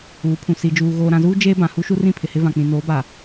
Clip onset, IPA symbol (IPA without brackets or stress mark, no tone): uː